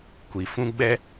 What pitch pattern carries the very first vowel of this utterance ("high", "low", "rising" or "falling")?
low